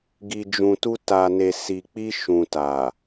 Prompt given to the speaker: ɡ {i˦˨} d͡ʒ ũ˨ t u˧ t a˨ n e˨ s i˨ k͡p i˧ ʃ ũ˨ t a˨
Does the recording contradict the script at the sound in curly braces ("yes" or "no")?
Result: yes